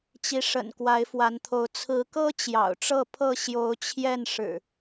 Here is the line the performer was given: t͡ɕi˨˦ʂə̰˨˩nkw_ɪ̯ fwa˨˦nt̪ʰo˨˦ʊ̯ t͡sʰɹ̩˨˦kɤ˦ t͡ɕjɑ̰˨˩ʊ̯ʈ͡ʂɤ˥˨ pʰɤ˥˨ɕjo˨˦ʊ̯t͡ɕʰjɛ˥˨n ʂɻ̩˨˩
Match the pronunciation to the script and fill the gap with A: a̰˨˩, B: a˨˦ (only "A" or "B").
B